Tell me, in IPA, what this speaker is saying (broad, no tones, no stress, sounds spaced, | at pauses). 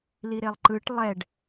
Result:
l i ɾ e lˠ ǃ ɯ ʈ lˠ ɛ ɖ